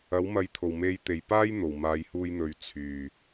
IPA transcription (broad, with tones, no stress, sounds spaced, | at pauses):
ɐ˨˥ w m ɐ˨˧ j t̪ʰ o˨˩ w m e˨˧ j t̪ e˨˩ j p aː˥ j n̪ o˨˩ w m aː˨˧ j h uː˧ j n̪ ɵ˨˧ ɥ t͡sʰ yː˨˩